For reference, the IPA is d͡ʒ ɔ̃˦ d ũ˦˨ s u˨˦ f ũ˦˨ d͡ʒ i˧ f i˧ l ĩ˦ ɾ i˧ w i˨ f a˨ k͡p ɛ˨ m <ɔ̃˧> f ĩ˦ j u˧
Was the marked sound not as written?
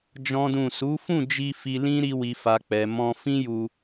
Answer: no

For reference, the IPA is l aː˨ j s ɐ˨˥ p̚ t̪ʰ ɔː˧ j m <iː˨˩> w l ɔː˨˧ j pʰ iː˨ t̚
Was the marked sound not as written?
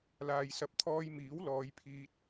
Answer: yes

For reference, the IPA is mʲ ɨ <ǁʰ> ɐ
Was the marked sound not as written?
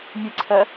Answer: yes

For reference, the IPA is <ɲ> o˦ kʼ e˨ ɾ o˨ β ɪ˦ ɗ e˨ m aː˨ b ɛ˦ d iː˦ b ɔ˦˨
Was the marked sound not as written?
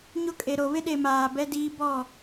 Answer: no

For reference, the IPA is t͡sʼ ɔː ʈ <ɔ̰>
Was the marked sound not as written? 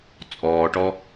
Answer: yes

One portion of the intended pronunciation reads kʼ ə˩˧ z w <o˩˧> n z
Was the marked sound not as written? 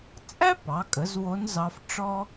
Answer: yes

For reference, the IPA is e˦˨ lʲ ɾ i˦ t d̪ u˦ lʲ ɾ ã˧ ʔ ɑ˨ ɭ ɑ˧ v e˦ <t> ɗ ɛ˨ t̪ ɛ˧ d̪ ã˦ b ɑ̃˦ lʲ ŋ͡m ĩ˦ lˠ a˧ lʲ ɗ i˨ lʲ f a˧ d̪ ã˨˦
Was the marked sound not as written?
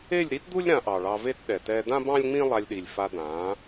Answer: no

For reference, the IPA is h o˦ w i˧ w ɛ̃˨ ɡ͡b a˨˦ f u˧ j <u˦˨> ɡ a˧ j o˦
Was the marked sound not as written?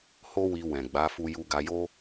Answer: yes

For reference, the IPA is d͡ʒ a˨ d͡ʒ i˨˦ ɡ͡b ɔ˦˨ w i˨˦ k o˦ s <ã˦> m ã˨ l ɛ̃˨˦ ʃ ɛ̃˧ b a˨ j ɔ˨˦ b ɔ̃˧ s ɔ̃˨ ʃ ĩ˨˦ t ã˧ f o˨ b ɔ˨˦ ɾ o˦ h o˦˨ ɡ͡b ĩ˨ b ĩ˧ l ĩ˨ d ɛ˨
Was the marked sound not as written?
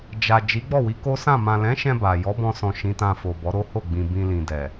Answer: yes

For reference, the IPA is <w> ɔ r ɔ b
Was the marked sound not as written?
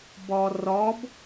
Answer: yes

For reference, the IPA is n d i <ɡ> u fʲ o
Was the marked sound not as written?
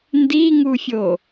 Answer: yes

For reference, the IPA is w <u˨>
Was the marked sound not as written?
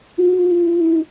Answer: yes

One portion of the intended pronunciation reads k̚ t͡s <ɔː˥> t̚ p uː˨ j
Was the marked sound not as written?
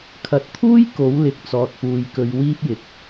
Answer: yes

